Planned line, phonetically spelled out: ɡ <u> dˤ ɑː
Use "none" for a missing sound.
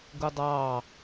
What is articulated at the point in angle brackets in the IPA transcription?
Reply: u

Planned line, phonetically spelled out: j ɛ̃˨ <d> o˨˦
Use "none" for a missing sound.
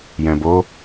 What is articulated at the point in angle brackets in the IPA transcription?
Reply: b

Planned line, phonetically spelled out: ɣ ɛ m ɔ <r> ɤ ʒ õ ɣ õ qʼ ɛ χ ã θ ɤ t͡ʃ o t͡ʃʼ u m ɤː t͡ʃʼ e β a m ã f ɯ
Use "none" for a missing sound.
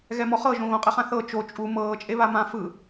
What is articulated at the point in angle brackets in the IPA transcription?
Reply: χ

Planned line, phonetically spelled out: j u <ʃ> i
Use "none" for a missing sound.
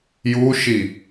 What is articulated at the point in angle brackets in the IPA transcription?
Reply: ʃ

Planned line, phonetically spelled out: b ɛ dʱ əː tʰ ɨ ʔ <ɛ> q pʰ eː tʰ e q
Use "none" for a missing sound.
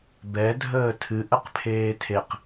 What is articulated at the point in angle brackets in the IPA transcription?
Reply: ə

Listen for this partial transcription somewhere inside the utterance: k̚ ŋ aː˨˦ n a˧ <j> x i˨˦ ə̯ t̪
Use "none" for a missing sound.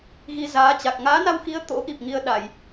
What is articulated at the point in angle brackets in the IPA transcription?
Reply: w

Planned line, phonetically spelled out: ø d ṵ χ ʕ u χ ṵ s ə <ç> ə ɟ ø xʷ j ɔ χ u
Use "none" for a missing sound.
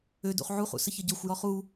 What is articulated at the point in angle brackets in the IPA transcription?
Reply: ç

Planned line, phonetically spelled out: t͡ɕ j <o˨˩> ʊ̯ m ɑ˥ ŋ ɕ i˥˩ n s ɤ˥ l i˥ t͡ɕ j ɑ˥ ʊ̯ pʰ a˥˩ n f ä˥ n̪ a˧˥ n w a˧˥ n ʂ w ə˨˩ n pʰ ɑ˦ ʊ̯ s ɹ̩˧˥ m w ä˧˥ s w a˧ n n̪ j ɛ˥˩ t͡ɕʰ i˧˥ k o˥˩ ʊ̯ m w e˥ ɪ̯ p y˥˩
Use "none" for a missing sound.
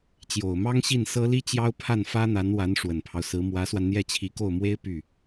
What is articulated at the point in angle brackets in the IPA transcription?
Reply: o˨˩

